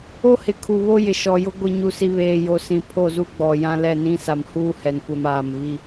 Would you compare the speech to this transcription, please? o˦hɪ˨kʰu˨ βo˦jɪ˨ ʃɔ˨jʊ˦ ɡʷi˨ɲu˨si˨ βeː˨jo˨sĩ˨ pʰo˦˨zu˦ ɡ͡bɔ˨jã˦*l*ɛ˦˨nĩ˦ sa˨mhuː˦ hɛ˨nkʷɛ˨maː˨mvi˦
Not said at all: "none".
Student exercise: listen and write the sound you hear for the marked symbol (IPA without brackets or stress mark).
l